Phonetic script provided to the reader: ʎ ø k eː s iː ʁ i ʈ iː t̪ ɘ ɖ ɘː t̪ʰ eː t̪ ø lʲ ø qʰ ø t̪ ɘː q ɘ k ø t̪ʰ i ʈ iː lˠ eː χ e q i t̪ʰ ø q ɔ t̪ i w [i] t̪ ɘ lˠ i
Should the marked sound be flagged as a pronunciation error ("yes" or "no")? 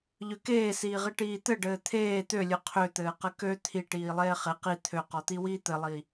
yes